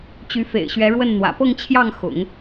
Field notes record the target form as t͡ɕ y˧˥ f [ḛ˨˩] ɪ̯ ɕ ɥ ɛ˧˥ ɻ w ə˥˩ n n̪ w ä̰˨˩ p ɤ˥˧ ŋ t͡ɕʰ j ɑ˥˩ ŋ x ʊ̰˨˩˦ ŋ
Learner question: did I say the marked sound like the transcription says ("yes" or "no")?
yes